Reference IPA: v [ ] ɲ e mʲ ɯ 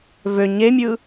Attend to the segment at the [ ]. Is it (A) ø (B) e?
A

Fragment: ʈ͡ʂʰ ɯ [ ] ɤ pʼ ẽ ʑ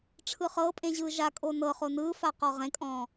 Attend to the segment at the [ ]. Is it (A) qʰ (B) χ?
B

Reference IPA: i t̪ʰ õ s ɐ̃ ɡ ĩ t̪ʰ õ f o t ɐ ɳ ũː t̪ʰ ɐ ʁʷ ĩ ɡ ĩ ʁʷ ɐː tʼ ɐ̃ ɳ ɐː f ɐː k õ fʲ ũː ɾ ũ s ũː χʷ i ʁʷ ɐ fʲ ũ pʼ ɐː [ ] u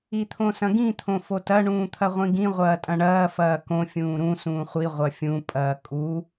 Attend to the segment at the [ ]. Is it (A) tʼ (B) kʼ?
B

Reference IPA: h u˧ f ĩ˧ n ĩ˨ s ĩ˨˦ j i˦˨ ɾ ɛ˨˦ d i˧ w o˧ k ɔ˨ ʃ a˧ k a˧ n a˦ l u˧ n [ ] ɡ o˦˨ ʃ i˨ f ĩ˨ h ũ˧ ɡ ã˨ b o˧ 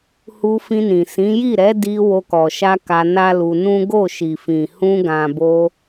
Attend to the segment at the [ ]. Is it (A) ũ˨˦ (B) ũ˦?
B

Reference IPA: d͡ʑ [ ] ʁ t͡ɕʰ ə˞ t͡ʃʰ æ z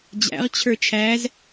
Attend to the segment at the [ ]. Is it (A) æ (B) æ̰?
B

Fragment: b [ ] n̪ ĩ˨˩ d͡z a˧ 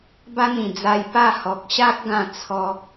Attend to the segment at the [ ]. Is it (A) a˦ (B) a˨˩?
A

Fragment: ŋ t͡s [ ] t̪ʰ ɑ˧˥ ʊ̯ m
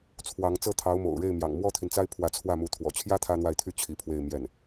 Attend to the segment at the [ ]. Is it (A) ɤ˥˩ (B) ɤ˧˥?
A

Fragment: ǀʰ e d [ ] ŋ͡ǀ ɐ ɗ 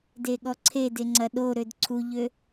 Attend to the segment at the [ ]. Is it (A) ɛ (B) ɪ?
B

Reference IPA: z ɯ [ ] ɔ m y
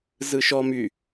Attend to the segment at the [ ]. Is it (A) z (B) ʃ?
B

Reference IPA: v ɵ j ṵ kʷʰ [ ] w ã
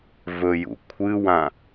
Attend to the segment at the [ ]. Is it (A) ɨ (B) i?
A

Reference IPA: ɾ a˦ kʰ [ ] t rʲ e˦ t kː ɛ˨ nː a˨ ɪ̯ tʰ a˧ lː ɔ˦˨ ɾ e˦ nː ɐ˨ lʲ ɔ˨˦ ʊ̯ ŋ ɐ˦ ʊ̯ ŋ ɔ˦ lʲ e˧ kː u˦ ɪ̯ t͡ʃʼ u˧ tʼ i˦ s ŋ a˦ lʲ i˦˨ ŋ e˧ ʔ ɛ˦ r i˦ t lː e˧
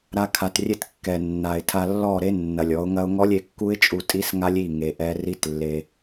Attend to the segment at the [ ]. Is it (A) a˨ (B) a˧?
B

